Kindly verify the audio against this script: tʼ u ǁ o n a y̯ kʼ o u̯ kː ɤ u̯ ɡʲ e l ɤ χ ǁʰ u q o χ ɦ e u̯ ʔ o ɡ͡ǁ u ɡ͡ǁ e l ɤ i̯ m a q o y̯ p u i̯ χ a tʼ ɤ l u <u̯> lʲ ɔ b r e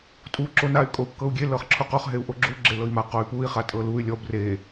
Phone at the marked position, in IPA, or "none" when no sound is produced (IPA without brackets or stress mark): y̯